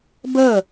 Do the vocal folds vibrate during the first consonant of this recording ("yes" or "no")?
yes